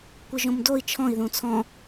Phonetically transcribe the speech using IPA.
kʷ ɯ ʒ õ m d o i̯ t͡ʃʰ ɔ̃ i̯ ð ũ t͡sʰ ɔ̃

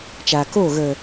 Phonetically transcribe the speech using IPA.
t͡ʃ aː˨ k oː˦˨ ɣ ə˨

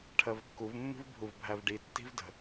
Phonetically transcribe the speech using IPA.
ʈʰ ɜ v kː u v mː ṳ v bʱ u v bʱ æ v ɖ i tː i̤ v d ə̤

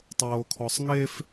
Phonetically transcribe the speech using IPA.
tˤ oː kʰ ɔ sˤ ŋ e f

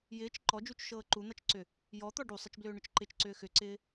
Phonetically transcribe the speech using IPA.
j ɪː t͡ʃ ǃ ɔ d͡ʒ u t͡ʃ ʃ ɤː ǃ u n̪ ʌ t͡ʃ ǀ ʏ | j ɔ t̪ ɔ ɖ u sˤ ɪ t͡ʃ b l ʏː ɳ ʏ t͡ʃ ǃ ɪ t͡ʃ ǀ ʏː x ʏ ǀ ɪː

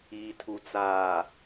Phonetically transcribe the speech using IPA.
iː˨ tʰ u˨ t͡s aː˨

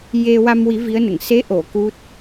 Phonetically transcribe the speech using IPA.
j e˧ w a˧ m w i˨˩˦ v i˧˥ ə̯ n ə˨˩˨ ŋ s e˧˥ ʔ o˨˩˨ k u˦˥ t̚

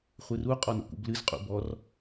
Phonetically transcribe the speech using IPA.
χʷ ɨ r u qʼ ɔ n o̰ k ṵ b l ɨ z qʼ ṵ b ɔ r

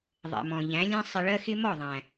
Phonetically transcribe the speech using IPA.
ðˤ ɛ̰˨ m ɔ̃˨ ʎ æ̃˨˦ lʲ ɛ̃˦ sˤ ɪ˧ ɭ ɜ˦ x ɪ˦ m ɔ˦˨ ðˤ æ̃˨

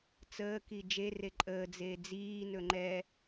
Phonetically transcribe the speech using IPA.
t͡s əː k i d͡ʒ e r e ǃʼ əː d͡z eː d͡z iː n ɵ ŋ͡ǃ ɛ

